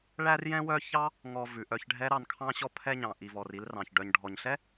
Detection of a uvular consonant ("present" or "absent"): absent